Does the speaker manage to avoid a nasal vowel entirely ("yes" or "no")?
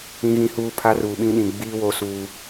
no